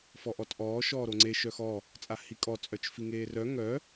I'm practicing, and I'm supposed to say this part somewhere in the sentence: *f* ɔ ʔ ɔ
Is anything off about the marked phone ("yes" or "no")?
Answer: no